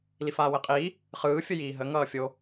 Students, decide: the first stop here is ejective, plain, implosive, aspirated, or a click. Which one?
ejective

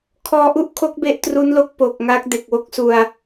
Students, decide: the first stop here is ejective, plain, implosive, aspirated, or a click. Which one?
aspirated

